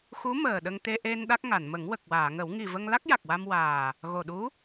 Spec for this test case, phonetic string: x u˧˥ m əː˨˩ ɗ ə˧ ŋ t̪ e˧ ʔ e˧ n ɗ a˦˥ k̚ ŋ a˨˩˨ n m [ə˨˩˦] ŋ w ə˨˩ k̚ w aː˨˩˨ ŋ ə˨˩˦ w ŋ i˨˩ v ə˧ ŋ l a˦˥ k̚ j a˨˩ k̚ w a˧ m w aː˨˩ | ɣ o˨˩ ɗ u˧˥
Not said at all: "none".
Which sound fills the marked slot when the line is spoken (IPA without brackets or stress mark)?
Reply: ə˨˩˦